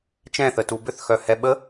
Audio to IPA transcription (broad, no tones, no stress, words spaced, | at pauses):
t͡ʃɛ̃θətu bʏθxœhɛ ɓə